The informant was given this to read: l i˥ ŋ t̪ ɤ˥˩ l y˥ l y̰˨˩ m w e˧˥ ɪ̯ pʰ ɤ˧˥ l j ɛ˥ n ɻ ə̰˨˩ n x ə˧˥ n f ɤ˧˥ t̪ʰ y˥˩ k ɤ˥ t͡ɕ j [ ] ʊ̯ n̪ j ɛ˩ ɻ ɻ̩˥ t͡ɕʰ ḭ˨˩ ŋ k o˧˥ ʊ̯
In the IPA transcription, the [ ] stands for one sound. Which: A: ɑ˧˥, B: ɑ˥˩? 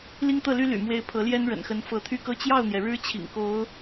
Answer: B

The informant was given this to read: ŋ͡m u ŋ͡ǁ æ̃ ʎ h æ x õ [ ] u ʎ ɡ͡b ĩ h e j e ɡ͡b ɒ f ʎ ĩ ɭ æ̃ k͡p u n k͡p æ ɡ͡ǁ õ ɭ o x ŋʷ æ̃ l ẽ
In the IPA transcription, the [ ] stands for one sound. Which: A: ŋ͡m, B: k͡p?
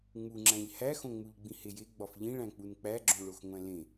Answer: A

